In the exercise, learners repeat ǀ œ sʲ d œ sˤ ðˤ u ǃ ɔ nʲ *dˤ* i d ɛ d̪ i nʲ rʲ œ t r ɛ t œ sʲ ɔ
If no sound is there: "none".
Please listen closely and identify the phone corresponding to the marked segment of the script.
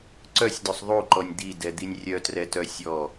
d̪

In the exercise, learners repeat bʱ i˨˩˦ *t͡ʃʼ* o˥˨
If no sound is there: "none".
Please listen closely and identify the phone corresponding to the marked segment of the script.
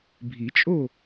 t͡ʃʼ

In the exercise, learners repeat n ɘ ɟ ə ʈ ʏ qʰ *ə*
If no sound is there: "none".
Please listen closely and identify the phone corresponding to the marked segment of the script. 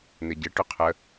ə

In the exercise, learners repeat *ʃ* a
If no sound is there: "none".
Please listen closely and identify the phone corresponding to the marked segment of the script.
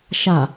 ʃ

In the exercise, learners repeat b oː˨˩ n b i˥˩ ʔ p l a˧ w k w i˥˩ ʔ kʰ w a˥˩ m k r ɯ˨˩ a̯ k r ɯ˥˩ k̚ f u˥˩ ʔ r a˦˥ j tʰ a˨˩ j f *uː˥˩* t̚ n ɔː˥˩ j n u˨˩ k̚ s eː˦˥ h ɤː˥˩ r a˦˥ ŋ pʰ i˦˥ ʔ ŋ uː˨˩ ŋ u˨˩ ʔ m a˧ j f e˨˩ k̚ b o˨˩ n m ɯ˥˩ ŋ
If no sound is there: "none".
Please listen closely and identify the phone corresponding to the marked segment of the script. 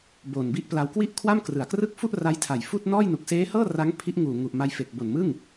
uː˥˩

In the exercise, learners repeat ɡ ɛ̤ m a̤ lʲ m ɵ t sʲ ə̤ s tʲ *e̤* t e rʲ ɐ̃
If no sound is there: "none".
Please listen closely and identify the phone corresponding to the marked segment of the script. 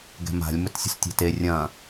e̤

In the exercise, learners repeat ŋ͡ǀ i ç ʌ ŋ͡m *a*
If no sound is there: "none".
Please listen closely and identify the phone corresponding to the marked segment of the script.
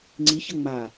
a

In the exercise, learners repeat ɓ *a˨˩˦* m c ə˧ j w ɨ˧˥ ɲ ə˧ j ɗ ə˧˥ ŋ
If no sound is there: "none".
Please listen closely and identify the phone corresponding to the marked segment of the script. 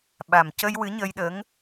a˨˩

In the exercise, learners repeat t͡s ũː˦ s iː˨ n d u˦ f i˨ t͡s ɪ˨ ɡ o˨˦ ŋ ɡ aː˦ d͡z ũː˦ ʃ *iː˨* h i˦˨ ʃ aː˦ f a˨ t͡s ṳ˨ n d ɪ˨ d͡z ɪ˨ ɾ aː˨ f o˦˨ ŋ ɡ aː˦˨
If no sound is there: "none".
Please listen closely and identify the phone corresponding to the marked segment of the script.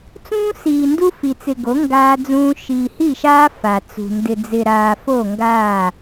iː˨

